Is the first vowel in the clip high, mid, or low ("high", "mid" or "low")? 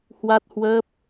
low